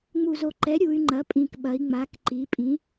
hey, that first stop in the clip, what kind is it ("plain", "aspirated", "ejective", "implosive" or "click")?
click